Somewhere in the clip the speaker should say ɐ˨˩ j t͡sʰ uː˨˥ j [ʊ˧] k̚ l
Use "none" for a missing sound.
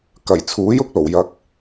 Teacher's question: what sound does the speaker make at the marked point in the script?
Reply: ʊ˧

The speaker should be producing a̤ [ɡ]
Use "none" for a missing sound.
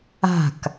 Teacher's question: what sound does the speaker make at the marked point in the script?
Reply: k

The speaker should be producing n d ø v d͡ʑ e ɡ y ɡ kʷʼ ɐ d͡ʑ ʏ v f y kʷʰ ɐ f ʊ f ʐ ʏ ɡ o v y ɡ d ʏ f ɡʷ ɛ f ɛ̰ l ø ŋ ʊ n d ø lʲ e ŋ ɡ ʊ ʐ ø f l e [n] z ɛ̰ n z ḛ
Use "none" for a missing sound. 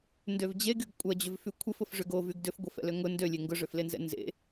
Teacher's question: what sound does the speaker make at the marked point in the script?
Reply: n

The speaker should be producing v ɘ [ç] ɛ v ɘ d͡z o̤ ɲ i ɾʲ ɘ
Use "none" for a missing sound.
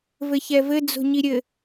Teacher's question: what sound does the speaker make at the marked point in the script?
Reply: ç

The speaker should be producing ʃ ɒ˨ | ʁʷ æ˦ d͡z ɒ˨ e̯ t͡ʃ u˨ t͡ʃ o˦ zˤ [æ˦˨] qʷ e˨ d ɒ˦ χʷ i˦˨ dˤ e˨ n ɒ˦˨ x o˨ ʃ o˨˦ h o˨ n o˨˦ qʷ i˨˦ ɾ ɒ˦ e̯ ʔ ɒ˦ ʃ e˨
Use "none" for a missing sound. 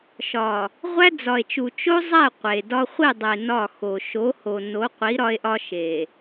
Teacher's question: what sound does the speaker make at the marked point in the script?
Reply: æ˦˨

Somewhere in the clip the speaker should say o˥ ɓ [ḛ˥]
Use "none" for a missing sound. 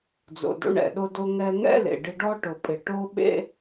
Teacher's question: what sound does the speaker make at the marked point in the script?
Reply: ḛ˥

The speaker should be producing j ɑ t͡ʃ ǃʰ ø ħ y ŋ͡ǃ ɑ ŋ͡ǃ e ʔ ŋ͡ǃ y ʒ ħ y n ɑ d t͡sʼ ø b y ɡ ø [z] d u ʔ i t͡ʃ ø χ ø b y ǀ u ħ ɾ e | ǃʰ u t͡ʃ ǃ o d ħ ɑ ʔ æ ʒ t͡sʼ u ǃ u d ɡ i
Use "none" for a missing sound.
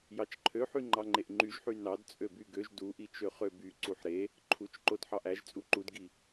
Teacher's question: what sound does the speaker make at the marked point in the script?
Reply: ʒ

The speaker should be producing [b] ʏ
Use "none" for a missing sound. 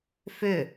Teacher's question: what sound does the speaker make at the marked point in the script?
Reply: f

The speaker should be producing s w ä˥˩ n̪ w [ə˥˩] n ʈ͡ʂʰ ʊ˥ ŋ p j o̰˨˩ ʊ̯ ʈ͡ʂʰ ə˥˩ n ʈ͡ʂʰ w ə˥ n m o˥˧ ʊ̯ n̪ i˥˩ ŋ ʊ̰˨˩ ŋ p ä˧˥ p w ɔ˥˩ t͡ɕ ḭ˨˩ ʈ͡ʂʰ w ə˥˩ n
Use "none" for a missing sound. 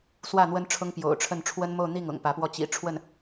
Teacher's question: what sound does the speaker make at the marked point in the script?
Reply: ə˥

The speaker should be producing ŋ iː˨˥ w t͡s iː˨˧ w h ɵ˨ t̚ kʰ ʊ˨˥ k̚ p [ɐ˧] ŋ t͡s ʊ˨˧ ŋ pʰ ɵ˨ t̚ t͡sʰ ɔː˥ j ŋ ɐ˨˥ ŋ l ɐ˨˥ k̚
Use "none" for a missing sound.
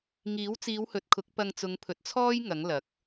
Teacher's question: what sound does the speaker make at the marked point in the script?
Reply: ɐ˧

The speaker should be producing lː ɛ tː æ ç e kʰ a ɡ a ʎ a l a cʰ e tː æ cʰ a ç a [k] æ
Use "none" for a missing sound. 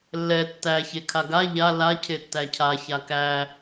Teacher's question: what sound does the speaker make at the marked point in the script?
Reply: k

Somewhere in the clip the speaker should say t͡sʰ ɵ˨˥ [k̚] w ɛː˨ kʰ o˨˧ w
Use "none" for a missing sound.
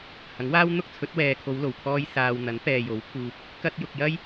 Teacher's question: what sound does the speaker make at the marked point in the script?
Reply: t̚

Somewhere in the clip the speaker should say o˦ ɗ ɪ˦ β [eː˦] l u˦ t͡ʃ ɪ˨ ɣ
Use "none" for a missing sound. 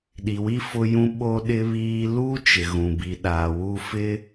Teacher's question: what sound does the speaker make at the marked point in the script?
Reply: iː˦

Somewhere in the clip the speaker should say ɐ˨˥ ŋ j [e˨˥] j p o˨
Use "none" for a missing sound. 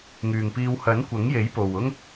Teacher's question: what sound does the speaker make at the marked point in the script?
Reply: e˨˥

